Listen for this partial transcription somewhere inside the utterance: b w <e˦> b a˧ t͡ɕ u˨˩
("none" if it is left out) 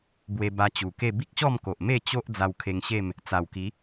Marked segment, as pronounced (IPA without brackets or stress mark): e˧